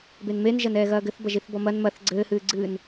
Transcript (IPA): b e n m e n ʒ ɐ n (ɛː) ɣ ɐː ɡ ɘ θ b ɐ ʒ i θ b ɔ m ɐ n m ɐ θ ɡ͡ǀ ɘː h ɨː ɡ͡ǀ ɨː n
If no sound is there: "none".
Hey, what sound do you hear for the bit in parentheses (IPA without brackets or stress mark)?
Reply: ɛː